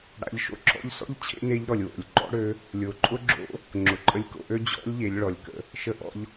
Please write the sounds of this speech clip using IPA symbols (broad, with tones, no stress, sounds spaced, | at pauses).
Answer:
ɽ a̰˩˧ ʎ ʃ o̰˧ ǁʰ ɔ̰˧˥ ʎ s ɔ̰˥ ʎ t͡ɕʰ ḛ˥ n e˧˥ ʎ ɾ ɔ˩ lʲ w o̰˩ lʲ ǃ ɔ̰˥ ɽ ø˧˥ | lʲ o˩ ǃʼ ʊ˥ ɡ͡ǁ o̰˧˥ | ŋ͡ǁ ʊ˩ ǃʼ ə˧ lʲ k o̰˧ ʔ ø˥ d͡ʑ ɔ̰˧˥ lʲ ʎ e˩˧ lʲ ɭ ɔ˩ lʲ k ə̰˧ | ʃ ə˧ ʔ ɔ̰˧ ʎ